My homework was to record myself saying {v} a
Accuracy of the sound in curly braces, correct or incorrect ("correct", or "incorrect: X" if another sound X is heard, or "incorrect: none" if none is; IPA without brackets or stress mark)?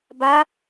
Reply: incorrect: b